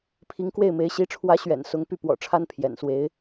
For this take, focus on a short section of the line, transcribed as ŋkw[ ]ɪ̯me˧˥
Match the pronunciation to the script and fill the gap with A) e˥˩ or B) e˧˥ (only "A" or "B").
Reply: A